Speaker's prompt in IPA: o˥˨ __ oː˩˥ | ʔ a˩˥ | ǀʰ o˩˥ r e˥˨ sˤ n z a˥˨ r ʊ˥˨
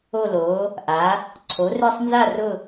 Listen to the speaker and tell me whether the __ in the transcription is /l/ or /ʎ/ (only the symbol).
l